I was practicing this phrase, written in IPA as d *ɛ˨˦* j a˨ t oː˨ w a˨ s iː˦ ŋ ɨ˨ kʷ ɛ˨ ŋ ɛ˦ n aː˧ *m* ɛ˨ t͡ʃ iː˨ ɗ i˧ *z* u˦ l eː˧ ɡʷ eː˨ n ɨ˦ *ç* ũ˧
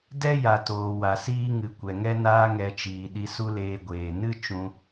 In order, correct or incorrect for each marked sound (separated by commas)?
incorrect, incorrect, incorrect, incorrect